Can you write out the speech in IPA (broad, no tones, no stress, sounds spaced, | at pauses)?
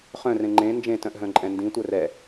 χ œ̃ r ẽ ŋ͡ǃ ẽ n d͡ʒ ẽ t œ̃ ʔ ɦ œ̃ ǃʼ ɛ̃ n d ĩ tʷ œ r ɛ